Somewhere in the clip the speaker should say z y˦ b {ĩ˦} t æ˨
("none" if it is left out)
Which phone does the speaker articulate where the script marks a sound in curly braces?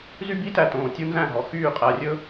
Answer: i˦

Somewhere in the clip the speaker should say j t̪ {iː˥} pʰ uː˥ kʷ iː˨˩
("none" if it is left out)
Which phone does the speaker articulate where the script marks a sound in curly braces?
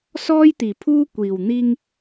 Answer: iː˨˩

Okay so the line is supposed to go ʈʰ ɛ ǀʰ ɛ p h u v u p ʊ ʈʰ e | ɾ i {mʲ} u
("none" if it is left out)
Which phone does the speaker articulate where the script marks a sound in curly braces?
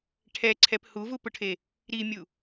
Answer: mʲ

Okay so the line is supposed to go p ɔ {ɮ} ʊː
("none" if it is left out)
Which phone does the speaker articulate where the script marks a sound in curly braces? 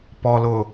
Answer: l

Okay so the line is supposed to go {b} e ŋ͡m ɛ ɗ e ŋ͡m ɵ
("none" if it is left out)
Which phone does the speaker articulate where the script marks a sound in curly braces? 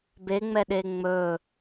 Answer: b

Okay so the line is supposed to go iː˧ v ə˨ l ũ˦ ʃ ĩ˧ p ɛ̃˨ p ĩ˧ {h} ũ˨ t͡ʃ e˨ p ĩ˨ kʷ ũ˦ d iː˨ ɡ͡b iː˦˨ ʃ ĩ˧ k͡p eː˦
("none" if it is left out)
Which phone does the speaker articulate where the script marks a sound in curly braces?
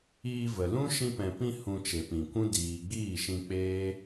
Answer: h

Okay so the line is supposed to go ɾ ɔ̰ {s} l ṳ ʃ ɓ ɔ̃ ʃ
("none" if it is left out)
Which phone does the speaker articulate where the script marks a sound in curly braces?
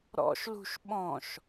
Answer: ʃ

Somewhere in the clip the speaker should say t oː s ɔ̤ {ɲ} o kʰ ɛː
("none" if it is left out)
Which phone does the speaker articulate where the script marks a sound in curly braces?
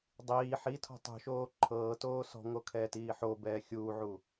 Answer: ŋ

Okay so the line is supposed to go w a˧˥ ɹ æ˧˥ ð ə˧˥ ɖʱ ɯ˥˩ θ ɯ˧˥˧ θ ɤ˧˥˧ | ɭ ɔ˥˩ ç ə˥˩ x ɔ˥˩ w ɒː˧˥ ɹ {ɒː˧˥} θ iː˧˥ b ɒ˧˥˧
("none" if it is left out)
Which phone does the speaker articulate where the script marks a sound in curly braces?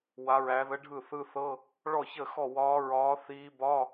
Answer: ɒː˧˥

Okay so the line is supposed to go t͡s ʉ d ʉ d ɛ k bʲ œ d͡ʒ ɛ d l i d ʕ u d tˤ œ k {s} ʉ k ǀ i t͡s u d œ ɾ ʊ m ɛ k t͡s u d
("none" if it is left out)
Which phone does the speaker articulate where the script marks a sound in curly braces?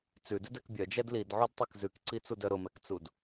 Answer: z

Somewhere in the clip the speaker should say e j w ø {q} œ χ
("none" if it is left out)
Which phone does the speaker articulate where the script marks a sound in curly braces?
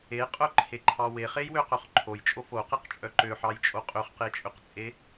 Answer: q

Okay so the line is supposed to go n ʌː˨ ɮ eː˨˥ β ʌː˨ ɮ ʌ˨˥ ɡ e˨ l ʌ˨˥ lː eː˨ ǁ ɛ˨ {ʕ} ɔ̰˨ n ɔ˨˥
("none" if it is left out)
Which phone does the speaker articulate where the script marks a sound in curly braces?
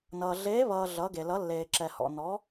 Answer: h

